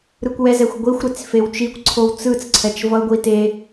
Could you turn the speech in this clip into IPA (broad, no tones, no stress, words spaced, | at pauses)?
ɾɯkʷwɛzɛxʷ ɡʷixʷɾet͡s fewt͡ʃikʷǀʰow t͡sɯt͡sǀʰɛt͡ʃ vʌɡʷi te